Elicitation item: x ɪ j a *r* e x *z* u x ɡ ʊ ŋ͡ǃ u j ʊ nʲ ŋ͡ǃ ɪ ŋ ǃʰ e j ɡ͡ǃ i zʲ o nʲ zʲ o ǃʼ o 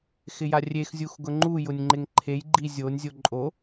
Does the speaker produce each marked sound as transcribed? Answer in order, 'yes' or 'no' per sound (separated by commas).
no, no